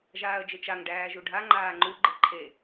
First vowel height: low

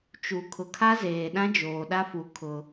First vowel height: high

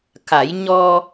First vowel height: low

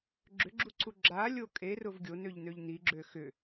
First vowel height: high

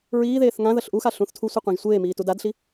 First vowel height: high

